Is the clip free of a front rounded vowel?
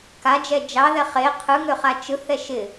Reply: no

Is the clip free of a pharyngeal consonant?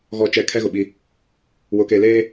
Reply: yes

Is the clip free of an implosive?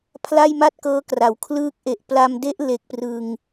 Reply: yes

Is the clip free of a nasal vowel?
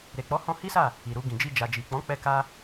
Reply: no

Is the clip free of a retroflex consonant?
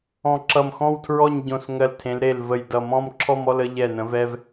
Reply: yes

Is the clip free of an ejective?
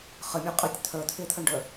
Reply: no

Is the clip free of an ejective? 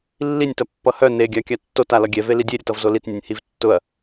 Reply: yes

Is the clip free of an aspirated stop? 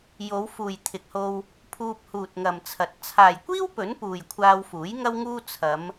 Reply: no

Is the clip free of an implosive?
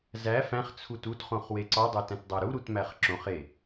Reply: yes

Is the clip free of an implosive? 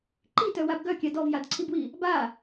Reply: yes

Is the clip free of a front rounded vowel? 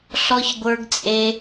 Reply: yes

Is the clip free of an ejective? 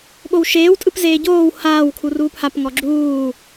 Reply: no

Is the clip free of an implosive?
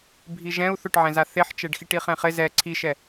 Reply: yes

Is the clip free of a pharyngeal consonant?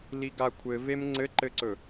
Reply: yes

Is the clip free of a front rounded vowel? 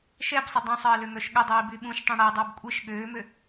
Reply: no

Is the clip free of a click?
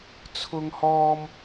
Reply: yes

